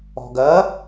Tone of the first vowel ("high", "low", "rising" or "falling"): low